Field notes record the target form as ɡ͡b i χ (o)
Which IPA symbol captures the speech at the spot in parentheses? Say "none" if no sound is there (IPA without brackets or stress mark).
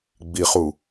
u